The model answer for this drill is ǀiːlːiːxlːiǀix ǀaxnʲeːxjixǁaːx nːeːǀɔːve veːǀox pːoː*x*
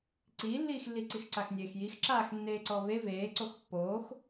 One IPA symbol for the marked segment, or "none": x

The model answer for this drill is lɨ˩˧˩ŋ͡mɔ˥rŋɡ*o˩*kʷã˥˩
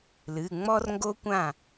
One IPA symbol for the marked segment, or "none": o˥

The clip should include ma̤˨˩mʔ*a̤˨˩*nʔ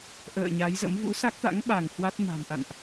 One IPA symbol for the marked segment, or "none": a̰˧˨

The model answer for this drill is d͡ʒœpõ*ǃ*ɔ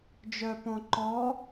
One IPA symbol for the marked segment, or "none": ǃ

